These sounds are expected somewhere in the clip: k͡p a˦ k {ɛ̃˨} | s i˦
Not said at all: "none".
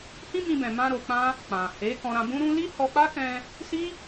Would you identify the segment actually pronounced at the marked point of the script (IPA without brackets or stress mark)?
ɛ̃˧